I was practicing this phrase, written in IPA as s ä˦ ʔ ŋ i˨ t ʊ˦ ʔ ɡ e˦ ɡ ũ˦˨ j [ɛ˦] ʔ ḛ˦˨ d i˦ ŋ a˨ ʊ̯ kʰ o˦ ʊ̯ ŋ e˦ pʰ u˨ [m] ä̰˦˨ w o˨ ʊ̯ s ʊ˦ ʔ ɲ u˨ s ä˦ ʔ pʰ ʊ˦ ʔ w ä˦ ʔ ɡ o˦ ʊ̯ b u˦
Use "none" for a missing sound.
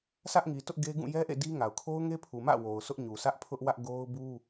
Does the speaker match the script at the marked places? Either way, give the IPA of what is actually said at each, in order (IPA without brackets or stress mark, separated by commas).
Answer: ɛ˦, m